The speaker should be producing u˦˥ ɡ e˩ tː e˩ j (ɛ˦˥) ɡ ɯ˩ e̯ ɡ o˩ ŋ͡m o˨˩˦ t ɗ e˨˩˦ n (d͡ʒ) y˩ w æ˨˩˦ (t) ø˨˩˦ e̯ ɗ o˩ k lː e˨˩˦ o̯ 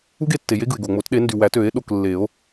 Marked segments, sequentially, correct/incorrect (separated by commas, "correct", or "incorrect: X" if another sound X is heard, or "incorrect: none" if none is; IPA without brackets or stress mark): incorrect: e˦˥, incorrect: d, correct